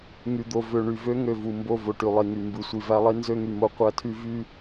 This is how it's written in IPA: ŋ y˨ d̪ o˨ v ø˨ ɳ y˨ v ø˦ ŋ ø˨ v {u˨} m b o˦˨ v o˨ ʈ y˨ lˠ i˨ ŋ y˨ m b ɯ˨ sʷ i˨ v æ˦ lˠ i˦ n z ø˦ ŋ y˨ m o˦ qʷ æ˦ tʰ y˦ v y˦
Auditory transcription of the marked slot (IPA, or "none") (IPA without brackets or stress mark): u˨